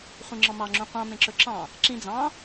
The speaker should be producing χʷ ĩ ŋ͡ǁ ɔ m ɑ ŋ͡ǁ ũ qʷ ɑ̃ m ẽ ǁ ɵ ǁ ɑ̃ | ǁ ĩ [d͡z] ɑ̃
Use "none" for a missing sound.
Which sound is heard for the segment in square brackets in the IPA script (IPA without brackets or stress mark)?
d͡z